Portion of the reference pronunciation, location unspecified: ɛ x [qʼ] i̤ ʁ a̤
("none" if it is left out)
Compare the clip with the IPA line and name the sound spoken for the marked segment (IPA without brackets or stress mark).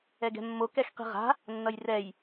q